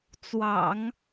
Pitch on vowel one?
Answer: low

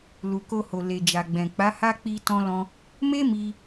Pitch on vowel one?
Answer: low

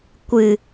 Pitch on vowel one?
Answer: low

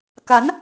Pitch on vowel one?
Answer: rising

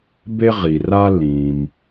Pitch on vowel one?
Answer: high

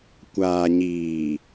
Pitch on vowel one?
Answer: low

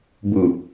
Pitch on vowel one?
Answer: low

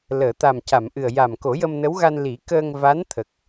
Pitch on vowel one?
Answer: low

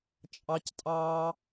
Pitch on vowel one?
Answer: high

